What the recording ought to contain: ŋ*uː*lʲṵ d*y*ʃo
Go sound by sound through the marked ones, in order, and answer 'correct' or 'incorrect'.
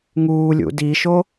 correct, incorrect: i

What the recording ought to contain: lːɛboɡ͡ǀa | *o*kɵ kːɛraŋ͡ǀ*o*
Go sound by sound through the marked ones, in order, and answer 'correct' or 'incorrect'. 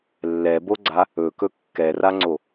incorrect: ɵ, correct

